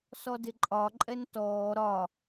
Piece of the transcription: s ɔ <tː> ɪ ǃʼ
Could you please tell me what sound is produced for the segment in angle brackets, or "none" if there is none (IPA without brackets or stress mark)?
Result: d